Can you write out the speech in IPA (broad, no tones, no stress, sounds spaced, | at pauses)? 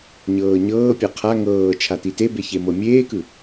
ɲ ɤː ɲ ɤː pʲ a qʰ a ŋ ɤː t͡ʃʰ a t i t e b e ç e m ɤ mʲ eː k ɯ